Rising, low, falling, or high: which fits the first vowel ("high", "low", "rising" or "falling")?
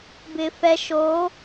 low